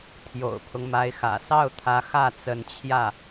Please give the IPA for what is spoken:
t̪ʰ j o̰˨˩ ʊ̯ pʰ ʊ˦ ŋ m a˧˥ ɪ̯ x ä̰˨˩ s ɑ˥˩ ʊ̯ t̪ʰ ä˧˥ x ä˥˩ t͡s ə˧˥ n t͡ɕʰ j ä˥˩

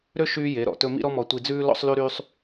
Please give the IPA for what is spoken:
ɾ ø˦ ʃ yː˦ j e˨˦ ɾ ɔ̰˨ t ɵ˧ m ḭ˦ ɾ ɔ˦ m ɔ˧ tʷ i˧ d͡z ʉː˦ l ɔ̰˦ sˤ l y˦ ɾ yː˦ sˤ

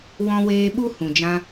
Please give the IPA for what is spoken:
w ɔ̃˧ w eː˧ ɓ u˦ h ũ˨ d͡ʒ ã˧

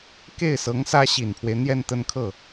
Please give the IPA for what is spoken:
k e˥˩ ɪ̯ s ɤ˧˥ ŋ s ä˥ ɕ i˨˩ n pʰ w e˦ ɪ̯ n̪ j ɛ˥˧ n t̪ ə˥˧ n kʰ ɤ˥˩

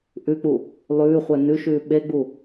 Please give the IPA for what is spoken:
ʔ ʉ k͡p u | lˠ ʉː χʷ ɛ n ʉ ʃ ʉː ɓ e ɡ͡b u

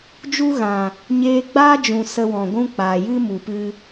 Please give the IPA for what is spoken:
d͡ʒ u˦ ɣ ã˨ | ɲ eː˦ ɡ͡b aː˦ d͡ʒ ũ˨ s ə˧ w ɔ̃˨ ɡʷ ũ˦ k͡p aː˨ j ɨ˦ m u˨ p ɨ˧

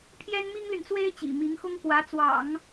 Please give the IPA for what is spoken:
pʰ j ɛ˥ n m i˥ ŋ l y˨ n t͡s w e˥ ɪ̯ t͡ɕ ḭ˨˩ m i˧˥ ŋ x ʊ˥ ŋ k w ä˧˥ t͡s w ɑ̰˨˩˦ ŋ

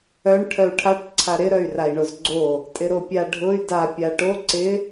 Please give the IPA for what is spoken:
œ ɳ ʈʰ œ u̯ ʈʰ a ʈ ǀʰ a ɾ ɪ ɾ œ y̯ r a i̯ ɳ o z ɡ͡ǀ o | tʼ ɪ ɾ o pʲ a ɖʱ ʊ y̯ d a pʲ a ʈ o ǀ ɪ

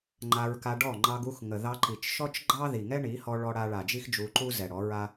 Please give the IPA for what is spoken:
ŋ͡ǃ a˧ ɹ k a˧ ɖ ɔ˦˨ ŋ͡ǃ ɑ˧ ɡ u˧ x ŋ ə˨ ð ɑ˧ ǃ i˨ t͡ʃ ʃ ɔ˦ t͡ʃ ɡ͡ǃ ɑ˦ ð i˨ ŋ ɛ˦ ɳ i˨˦ h ɔ˧ ɭ ɔ˧ ɽ a˧ ɭ a˨ d͡ʒ i˦ x d͡ʒ u˧ ǃ u˦ z ɛ˨ ɽ ɔ˨˦ ɹ a˦

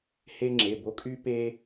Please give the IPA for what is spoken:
h e˦ ŋ͡ǁ e˩˧˩ b o˦ kʼ y˦ p eː˦

